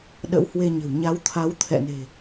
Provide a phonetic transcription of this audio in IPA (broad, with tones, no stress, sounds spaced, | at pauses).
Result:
ɗ ə̰˧˥ w h w e˧ ɲ ə̤˨˩ w ɲ a˨˦ w t̪ʰ a˨˦ w t̪ʰ ɛ̰˧˨ n e̤˨˩